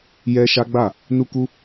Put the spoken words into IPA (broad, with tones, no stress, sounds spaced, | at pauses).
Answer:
j ɛ˦ ʃ a˦ ɡ͡b a˦˨ | n u˦ k u˦